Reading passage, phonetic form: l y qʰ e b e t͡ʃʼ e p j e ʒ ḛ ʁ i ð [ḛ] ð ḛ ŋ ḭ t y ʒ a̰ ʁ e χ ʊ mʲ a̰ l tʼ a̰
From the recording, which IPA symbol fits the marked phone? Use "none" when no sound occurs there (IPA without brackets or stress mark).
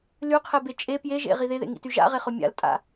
e